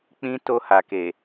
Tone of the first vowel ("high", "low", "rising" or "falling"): high